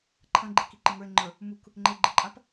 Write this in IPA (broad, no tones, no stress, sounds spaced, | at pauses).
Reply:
ǃʰ ɐ̃ ɡ͡ǃ i k i ǃ ɪ ŋ ə˞ e̯ ŋ͡ǃ ə˞ | m u k | ŋ͡ǃ e ɡ͡ǃ ɪ ǃʼ a p